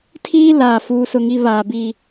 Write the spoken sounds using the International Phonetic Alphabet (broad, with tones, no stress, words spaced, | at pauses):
tʰiː˦ laː˦˨fuː˦sʊ˦ŋi˦ βaː˨bi˦˨